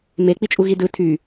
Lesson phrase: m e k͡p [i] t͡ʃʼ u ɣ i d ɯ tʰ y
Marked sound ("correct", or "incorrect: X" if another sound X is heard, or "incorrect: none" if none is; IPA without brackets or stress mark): correct